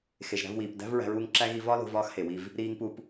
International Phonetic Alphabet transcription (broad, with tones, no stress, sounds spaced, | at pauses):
x e˩ ʒ ɾ æ̤˧ v w iː˩ p d æ̤˥ v ɹ æ̤˧ ɹ uː˧ ŋ ǁ æ˥ ɣ i˧ v ɒ˥ l o̤˧ v ɒː˥ x h e˩ w i˧ v | ɾ iː˧ ŋ p u˧ p